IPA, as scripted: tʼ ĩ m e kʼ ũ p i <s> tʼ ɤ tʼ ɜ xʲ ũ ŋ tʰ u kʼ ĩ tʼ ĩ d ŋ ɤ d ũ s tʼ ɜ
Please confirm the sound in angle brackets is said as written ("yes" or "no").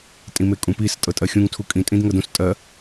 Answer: yes